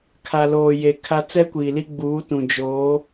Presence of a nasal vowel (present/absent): present